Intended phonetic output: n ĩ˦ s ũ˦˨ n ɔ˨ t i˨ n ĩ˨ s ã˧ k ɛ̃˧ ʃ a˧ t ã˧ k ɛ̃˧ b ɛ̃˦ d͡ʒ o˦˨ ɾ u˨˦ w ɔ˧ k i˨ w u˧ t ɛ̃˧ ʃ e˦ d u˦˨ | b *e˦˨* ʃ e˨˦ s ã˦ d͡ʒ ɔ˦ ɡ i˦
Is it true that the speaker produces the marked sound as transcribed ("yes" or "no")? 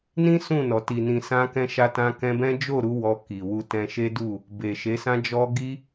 no